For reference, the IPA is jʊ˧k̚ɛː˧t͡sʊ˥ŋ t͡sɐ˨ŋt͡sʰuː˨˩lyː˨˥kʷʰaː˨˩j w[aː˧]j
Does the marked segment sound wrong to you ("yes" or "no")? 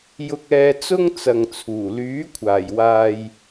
yes